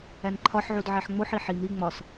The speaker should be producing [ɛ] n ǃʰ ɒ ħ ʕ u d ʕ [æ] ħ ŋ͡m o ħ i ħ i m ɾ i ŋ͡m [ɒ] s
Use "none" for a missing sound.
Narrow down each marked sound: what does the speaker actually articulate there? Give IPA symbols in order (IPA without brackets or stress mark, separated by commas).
æ, æ, ɒ